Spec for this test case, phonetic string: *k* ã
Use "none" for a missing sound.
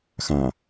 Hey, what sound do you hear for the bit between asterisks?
x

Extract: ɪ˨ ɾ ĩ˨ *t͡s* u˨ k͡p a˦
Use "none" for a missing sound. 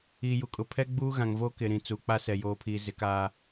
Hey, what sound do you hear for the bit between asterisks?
t͡s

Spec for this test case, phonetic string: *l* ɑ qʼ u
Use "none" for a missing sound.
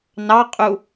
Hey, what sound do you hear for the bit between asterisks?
n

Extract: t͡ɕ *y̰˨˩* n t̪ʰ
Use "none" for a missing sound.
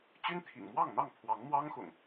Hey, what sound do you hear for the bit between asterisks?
y˦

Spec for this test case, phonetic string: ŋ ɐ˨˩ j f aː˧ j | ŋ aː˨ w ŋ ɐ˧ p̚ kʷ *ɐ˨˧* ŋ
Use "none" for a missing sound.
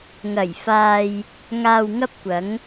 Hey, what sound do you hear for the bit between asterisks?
ɐ˨˧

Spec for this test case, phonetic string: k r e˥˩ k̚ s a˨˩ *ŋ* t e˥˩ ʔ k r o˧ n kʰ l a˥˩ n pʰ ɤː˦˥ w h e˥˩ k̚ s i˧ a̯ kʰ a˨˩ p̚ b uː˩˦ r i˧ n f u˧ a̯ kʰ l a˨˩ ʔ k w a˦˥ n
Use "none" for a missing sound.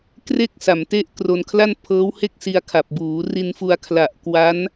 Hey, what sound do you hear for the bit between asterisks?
m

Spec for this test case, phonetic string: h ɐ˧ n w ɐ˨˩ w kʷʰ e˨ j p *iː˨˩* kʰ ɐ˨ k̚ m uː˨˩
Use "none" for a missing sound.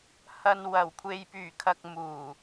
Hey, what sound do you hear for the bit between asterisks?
yː˨˩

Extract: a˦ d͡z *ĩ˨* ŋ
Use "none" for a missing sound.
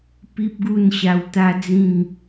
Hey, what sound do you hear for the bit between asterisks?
ĩ˥˧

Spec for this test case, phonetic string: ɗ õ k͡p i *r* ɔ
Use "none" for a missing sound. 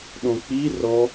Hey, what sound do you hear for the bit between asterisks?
r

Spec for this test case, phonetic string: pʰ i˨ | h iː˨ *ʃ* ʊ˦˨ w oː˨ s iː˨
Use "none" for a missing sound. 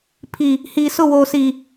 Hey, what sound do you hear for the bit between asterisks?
s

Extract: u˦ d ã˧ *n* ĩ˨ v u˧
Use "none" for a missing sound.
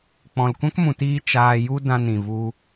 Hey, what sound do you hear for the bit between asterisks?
n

